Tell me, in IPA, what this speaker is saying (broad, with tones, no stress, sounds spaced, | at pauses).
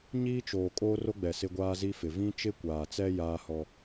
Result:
ɲ iː˦ t͡ʃ oː˨ kʼ oː˦ r o˦ ɡ͡b ɛ˨ s ɪ˦ ɡʷ aː˦ z i˦ f ɪ˨ v ĩ˦ t͡ʃ ɪ˦ kʷ aː˨ t͡s ɛ˦ j aː˦ h ɔ˦